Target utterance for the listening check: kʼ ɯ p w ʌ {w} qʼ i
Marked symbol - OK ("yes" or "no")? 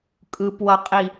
no